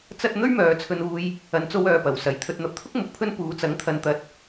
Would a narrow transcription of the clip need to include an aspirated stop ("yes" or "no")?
yes